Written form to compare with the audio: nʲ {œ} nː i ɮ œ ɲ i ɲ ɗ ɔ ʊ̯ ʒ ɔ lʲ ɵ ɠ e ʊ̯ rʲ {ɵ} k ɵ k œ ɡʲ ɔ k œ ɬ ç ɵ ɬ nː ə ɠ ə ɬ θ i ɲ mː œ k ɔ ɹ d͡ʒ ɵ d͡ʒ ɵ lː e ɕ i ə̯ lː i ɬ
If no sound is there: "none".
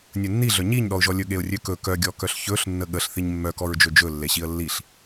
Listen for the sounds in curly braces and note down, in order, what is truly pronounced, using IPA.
ɵ, ø

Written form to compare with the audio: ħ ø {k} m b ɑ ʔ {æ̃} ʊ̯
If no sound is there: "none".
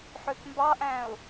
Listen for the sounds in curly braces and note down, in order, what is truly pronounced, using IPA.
k, æ̃

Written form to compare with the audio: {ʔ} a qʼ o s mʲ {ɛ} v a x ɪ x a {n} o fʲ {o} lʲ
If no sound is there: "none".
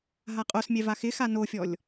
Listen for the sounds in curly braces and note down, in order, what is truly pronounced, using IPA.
ɦ, ɛ, n, ɔ

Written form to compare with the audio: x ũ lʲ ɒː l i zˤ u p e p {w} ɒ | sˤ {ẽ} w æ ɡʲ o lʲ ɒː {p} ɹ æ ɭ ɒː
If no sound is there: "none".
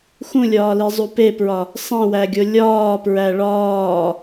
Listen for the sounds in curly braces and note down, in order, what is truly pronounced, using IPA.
ɹ, ẽ, p

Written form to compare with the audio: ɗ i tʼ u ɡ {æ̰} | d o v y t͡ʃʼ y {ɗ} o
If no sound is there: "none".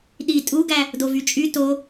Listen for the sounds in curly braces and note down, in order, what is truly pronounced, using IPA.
æ, t

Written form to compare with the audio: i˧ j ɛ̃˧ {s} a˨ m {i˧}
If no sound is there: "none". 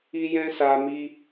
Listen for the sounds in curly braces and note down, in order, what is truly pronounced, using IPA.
s, i˧

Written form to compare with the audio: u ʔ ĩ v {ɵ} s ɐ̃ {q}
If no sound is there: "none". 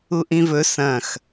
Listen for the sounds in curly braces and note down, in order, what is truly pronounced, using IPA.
ɵ, x

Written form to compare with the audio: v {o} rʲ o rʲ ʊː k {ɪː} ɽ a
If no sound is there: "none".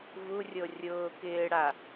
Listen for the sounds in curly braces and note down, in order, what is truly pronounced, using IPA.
u, ɪː

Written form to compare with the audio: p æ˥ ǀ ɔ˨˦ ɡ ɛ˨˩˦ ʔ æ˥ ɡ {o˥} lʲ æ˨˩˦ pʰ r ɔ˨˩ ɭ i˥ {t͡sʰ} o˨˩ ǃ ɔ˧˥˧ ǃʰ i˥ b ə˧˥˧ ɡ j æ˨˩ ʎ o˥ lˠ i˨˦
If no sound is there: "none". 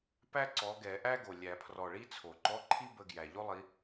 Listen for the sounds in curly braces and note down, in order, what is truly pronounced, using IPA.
o˨˩, t͡sʰ

